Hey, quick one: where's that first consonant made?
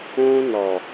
tongue tip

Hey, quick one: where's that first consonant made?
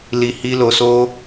tongue tip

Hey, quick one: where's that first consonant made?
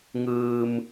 velum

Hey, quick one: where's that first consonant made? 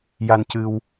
palate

